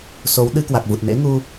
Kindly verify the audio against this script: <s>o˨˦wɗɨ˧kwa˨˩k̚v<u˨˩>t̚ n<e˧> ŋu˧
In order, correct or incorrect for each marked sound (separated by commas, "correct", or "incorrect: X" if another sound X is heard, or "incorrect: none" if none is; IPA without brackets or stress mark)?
correct, correct, incorrect: ḛ˧˥